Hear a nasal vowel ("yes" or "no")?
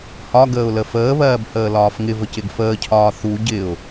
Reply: no